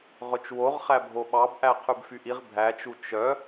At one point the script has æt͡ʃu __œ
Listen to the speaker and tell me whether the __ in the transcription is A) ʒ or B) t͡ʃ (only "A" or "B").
B